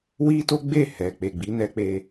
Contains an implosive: no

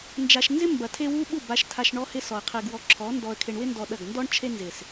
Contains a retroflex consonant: yes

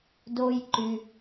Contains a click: yes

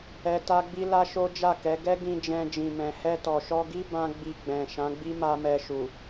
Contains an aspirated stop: no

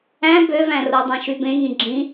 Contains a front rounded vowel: yes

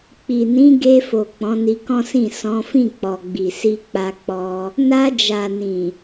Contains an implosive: no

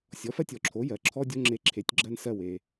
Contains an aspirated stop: yes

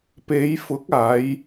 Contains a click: no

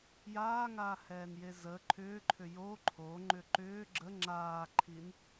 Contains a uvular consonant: no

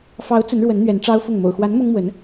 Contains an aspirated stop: no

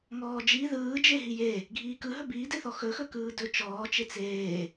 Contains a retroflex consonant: no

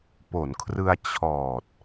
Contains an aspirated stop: yes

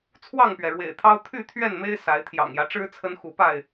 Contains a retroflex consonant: yes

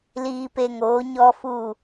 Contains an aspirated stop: no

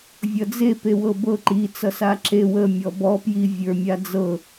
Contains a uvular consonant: no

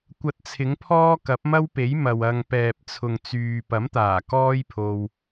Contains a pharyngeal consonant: no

